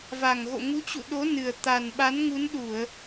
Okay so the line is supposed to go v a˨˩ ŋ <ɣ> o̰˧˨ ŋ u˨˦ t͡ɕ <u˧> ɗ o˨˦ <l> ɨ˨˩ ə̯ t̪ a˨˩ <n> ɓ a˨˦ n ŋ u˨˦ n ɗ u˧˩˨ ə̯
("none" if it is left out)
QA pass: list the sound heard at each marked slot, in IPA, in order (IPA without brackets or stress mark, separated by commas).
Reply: ɣ, ṵ˧˨, n, n